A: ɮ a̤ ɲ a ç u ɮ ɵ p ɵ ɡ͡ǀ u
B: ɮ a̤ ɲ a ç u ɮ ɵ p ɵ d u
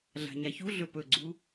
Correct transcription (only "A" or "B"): A